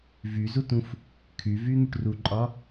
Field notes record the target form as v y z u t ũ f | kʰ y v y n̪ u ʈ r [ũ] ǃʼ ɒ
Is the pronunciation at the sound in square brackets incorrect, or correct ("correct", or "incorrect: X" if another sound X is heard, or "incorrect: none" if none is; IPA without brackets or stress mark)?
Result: incorrect: u